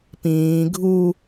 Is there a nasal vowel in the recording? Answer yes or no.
yes